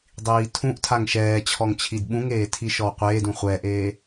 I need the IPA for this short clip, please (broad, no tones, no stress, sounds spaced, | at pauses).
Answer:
dˤ iː tʰ ũ ʔ tʰ a ŋ ʃ ɛː t͡ɕʰ ɔ ŋ t͡ɕʰ i d ɓ ũ ŋ eː tʰ i ʃ ɔ w qʷ eː d ũ χʷ ɛ ʔ eː